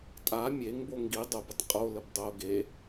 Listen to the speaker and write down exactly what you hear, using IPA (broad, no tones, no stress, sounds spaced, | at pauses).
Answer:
tʼ a mʲ e ŋ b o ŋ ɡ i dˤ o b ə tˤ qʼ o l ə b dˤ o ɡ e